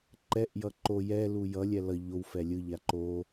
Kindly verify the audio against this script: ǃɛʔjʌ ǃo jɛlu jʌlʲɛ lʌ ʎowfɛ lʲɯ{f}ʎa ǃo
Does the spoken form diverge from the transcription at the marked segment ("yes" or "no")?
yes